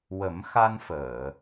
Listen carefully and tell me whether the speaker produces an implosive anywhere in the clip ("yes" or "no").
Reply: no